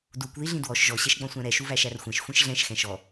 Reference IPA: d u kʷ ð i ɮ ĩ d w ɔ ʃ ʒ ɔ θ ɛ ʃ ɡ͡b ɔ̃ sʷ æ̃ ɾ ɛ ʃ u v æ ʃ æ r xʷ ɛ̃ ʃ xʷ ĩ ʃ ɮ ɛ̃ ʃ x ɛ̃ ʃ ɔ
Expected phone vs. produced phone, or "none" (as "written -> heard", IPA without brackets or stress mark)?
θ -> ɕ